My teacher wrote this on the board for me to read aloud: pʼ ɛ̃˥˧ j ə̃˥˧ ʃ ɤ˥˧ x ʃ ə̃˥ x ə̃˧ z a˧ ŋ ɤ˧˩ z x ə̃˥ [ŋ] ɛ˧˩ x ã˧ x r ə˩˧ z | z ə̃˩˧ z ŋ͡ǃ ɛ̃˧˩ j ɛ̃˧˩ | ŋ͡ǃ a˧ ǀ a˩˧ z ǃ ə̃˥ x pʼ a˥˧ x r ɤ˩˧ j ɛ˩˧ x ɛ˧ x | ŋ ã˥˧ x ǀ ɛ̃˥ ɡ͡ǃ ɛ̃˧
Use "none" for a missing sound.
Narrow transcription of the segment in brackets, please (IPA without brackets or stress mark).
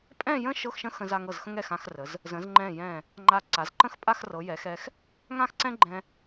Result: ŋ